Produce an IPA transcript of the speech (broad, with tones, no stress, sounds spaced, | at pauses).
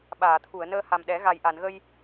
ɓ aː˨˩˨ t̪ʰ u˨˩˨ ə̯ n əː˧ h a˨˩ m ɗ ɛ˨˩˦ ɣ a˨˩ j ʔ a˨˩˨ n ɣ ə˧ j